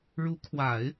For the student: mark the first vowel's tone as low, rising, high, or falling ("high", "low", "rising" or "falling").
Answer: rising